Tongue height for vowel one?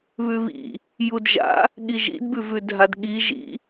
high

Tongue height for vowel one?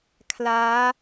low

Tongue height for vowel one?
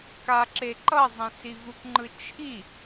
low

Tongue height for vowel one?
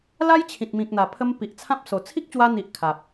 low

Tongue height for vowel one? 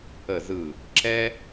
mid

